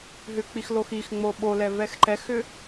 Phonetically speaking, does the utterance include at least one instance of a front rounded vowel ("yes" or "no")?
yes